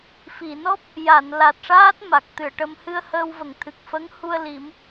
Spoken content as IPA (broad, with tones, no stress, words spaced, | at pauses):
fi˨˩˨nɔ˦˥p̚ | ja˨˩˨n la˨˩t̚ʂaː˦˥t̚ ma˨˩k̚t̪ɨ˨˩˨ə̯ʈə˧m hɨ˧ə̯həː˧wvə˨˩˨ŋ t̪ʰɨ˨˩k̚fə˧˥ŋ hu˧ə̯li˨˩˦m